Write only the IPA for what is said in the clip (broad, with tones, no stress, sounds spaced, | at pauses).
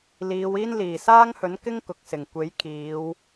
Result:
l iː˨˧ w iː˥ n l iː˨˩ s aː˥ ŋ h ɵ˨˥ n k ɪ˥ ŋ k ʊ˨ k̚ s ɪ˨˩ ŋ kʷ e˨˥ j kʰ iː˨˧ w